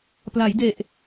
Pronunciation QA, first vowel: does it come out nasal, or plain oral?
oral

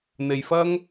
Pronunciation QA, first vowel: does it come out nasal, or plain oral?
oral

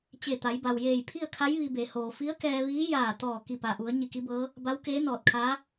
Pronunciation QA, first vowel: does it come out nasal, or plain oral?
oral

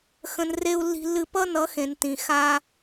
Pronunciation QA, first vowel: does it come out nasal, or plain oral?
nasal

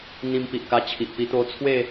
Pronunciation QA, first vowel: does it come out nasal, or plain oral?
nasal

